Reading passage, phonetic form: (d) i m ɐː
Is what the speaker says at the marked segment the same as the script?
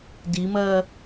yes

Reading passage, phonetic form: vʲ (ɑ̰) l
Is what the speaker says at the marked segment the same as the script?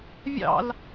yes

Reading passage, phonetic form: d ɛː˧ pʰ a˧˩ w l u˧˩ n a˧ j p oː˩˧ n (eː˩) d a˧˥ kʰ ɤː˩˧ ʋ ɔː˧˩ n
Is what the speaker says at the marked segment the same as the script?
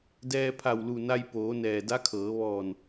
no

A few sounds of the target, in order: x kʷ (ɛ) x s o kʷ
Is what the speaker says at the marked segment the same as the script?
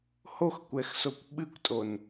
yes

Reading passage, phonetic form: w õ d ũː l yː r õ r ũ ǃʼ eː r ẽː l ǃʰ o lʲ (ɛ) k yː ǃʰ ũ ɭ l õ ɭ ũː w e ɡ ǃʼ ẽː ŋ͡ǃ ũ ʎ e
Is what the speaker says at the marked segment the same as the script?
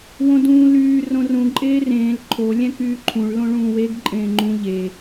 no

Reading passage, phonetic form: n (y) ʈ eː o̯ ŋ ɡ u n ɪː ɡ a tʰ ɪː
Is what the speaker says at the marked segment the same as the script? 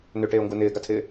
no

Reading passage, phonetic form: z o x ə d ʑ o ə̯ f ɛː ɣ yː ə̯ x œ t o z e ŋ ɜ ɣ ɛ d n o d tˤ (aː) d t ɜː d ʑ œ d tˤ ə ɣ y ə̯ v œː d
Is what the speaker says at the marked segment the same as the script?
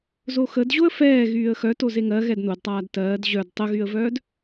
yes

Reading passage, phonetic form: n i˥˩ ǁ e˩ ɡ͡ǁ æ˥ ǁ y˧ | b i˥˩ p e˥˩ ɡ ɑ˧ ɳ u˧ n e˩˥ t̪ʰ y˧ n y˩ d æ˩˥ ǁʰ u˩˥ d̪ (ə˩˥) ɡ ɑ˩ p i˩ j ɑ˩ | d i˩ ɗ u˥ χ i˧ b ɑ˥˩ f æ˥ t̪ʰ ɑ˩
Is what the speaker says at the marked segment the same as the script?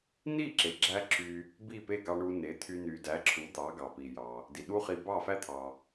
no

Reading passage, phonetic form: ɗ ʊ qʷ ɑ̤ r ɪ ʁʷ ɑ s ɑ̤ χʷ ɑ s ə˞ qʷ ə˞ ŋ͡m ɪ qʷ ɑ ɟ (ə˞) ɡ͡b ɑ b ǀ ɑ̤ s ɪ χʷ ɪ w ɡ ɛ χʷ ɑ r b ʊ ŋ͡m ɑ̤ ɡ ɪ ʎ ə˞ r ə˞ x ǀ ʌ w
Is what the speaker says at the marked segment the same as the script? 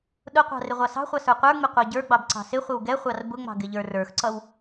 yes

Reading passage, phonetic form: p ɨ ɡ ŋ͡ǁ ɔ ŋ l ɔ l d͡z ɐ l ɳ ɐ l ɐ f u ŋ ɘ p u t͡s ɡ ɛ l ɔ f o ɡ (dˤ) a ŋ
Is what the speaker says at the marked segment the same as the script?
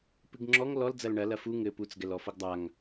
yes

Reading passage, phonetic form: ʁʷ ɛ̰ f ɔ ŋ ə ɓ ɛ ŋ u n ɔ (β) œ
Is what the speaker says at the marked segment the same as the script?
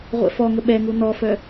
no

